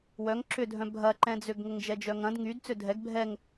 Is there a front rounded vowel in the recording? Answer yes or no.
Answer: yes